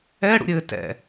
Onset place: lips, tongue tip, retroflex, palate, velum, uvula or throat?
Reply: retroflex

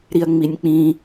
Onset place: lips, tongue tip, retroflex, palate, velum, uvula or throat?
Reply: tongue tip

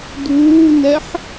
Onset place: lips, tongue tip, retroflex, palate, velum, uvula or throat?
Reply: tongue tip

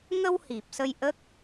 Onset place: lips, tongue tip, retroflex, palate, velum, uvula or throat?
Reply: velum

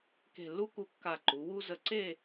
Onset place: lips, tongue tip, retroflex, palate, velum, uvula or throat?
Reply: velum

